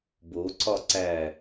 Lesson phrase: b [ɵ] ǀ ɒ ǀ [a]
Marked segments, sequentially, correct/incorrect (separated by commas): incorrect, incorrect